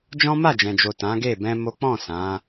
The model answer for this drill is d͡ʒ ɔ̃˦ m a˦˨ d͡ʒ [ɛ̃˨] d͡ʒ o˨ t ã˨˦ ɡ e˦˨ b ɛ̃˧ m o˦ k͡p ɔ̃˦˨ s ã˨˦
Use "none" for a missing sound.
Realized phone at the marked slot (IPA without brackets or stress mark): ɛ̃˨